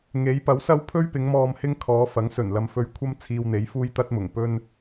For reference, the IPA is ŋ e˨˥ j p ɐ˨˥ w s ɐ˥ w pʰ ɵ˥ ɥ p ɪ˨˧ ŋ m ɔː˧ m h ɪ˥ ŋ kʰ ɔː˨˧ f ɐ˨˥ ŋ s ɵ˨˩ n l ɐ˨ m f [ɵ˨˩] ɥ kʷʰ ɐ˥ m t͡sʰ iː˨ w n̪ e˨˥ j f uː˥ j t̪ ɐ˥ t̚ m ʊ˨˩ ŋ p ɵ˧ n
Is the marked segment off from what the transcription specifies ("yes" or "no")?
yes